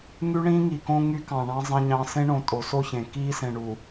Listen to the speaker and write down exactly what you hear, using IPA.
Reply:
ŋ y˦ ɳ ĩː˦ ŋ i˨ k õ˦ ŋ y˦ k ɑ̃˨ ɳ ɑ̃˦ zˤ ẽ˦ ɲ ɑ̃˦ s ẽ˦ ɳ õ˨ tʼ o˨ s o˦˨ ç ẽ˨ k iː˦ s ẽ˨ ɳ u˨

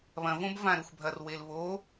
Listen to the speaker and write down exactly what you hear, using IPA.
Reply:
β ɐ̃ v õ b v ã ɾ ɵ xʷ bʱ ɐ r w e l β o

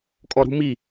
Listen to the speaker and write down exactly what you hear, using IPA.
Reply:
kʼ ɔ ɾ ṳ m i

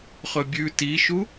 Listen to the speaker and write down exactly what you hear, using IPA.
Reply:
χ ɵ bʲ ʉ t i ʃ u

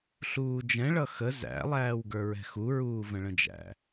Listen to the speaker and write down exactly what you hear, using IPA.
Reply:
ɬ uː d͡ʒ ɛ̃ ɭ ʌ x ə z æ̰ lˠ æː w ɡ ə˞ ɹ ɛ̤ x u ɹ uː v ə̃ ɭ ə̃ d͡ʒ æ̰

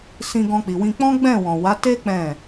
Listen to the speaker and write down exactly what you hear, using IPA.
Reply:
s ĩ˧ ɡ ɔ̃˧ k͡p i˨ w ĩ˧ k͡p ɔ̃˦ ɡ͡b ɛ̃˦˨ w ɔ̃˨ w a˨˦ t e˦ k͡p ɛ̃˦˨

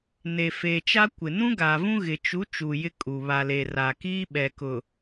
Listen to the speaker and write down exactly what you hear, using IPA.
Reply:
n e˨ f eː˨ t͡ʃ a˦ kʷ ɪ˨ n ũ˦ ɡ aː˨ v ũ˦ ɣ ɪ˨ t͡ʃ u˨˦ t͡ʃ uː˨ j ɪ˦ kʼ u˨ β a˨ l e˨ r a˨ k iː˦ ɓ ɛ˨ k ʊ˨

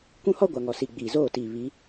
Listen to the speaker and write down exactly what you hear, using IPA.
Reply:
kʷ ũ˦ h ɔ˦ ɡʷ a˨ ŋ ɔ˨ s i˨ ɡ͡b iː˨ z oː˦˨ t iː˨ β i˨˦

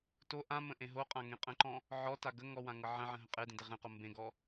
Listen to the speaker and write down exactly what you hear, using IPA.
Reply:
t o ʔ ã m ə̃ ʔ ẽ ɦ o qʼ ã ŋ ẽ qʼ ə̃ ǃ ɔ̃ | ʕ ɔ t a ɡ ə ŋ ɔ w ã ŋ ɤ ʕ ə̃ ʕ ə̃ ɦ ə̃ qʼ e d ẽ d e ʁ ẽ q o m b ẽ ɡ ɔ

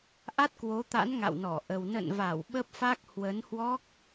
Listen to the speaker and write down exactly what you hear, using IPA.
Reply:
ʔ a˦˥ t̚ k w o˨˦ t̪ a̰˧˥ n ŋ a̰˧˨ w n ɔ˧˩ ʔ ə˨˩ w n ə̰˧˨ n v a˧˩ w ɓ ə˦˥ p̚ f a˦˥ k̚ h w ə˨˦ n h w ɔ˦˥ k̚

